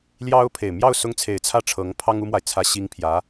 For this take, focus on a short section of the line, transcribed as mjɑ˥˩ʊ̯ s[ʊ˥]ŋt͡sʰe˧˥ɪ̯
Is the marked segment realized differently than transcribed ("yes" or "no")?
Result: no